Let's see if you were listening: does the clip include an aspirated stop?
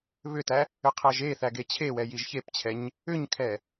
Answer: yes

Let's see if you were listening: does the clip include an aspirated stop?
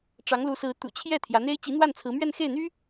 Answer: yes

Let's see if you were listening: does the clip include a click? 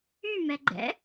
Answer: yes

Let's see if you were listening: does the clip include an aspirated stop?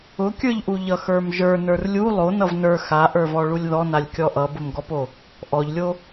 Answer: no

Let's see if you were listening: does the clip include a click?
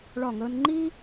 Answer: yes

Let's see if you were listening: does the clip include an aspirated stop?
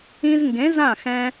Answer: no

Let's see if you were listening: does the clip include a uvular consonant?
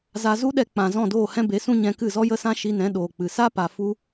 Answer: no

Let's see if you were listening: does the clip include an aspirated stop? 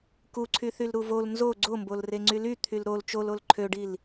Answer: yes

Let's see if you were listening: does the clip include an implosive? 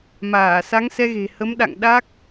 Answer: yes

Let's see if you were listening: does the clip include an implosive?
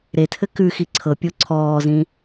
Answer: no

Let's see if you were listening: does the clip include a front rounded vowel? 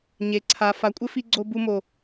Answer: no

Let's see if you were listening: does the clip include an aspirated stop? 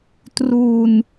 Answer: no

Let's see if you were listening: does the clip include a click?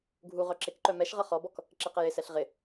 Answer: yes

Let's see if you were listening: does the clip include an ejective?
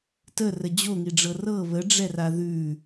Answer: no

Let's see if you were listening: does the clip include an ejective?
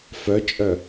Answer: yes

